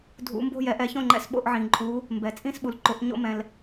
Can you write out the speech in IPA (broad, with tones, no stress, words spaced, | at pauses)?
dʱṵ˨˦mbo̤˥˨ jɛ˨˦ ʔɛ˨˦çõ˥˨ŋ͡ǃɛ̰˥˨s ɓo̰˥˨ʔʕĩ˩ǃʼu˨˦ | mbɛ˩ t͡sʼĩ˥˨sɓu˩l ǃʊ˨˦ʔ ɲo̰˥˨mɛ̃˩l